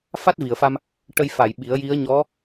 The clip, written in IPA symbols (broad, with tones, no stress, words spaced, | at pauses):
fa˦˥t̚vi˨˩˨ə̯fa˧m | ʈə˧j fa˨˩˨j ɓi˨˩˦ə̯ji˧˥ə̯ ɲɔ˧˥